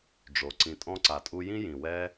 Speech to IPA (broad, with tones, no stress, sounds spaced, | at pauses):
ɖ͡ʐ o˨ ǀ ĩ˨ tʼ ɔ̃˧ ǀ a˨ tʼ u˧ j ĩ˦ j ĩ˨ w ɛ˦